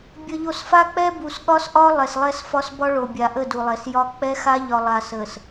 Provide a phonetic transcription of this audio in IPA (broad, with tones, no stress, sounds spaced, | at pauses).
bʲ ə˨ ʎ o˨ s f a˦ k͡p ɛ˦ b u˨ s ɠ ɒ˦ s ʔ ɒ˦ lˠ ɛ˨ s lˠ ɛ˦ s f ɒ˦ s b ɒ˦ ɭ o˨ bʲ a˨ ʔ ə˦˨ d u˨ lˠ ɛ˨ s j ɒ˦ k͡p ɛ˦ x a˦ ʎ ɒ˨ lˠ a˨ s ə˨ s